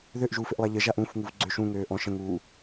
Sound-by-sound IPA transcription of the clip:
ð ø ʔ ʒ uː f ɪ ʔ lˠ a ʎ ə ʒ a ʔ ũ f ŋ u v ɡ͡ǀ ø ʃ ũ ŋ øː ʔ ɔ̃ ʃ ə̃ ŋ uː

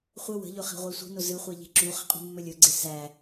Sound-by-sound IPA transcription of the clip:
χʷ ə w ə̤ ʎ ɵ χ e̤ ʁʷ æ sʷ i̤ n ʊ z ɨ χʷ e ʎ e̤ ǁ u χ ə̤ qʼ ṳ mː ɵ lʲ ɵ ɡ͡ǀ e s æ

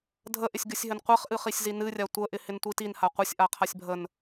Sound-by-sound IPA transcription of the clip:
dʱ ə ʔ ɪ sʲ ɡ ɨ sʲ ɦ ɘ n qʷ ɛ χ ʔ ɨ χ i sʲ z i n ɨ rʲ a tʷ ə ʔ ɪ h ɪ n tʷ i t i n h a qʷ ɘ sʲ ʔ a qʰ a sʲ bʱ ə n

